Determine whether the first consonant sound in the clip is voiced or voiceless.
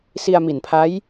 voiceless